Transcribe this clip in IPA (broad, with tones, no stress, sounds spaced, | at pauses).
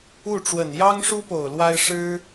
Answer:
u˥˩ ʈ͡ʂ w ə˨˩ n j ɑ˥ ŋ ʂ u˥ p o˨˩ ʊ̯ l w a˥ ɪ̯ ʂ ɻ̩˥